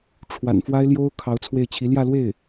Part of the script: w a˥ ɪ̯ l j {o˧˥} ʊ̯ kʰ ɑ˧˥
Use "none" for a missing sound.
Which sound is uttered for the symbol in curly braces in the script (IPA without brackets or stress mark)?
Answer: o˥